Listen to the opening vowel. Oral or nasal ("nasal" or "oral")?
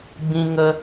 nasal